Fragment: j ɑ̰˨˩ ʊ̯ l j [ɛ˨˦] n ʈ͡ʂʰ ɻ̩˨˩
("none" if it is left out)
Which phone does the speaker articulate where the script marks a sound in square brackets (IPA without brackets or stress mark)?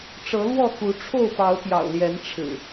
ɛ˨˦